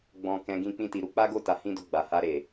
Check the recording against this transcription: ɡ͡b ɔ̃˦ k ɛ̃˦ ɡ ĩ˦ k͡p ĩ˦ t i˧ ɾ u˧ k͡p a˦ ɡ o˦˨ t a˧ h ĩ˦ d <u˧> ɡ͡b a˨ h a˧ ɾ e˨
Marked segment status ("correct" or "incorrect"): incorrect